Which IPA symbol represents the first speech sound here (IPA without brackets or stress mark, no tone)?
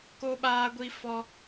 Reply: k